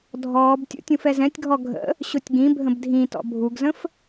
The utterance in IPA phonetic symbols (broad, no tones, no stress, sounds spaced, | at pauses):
dʱ ɔː b tʲ ṵ tʲ ũ f ɛ z ɛ̃ tʲ ɡʱ ɔ ɡʱ ə̰ | ɕ ʊ tʲ ɡ ĩ bʱ ə̃ b dʱ ĩ t ɔ̰ bʱ u ɡ z ə̃ f